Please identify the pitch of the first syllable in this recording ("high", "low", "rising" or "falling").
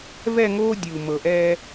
falling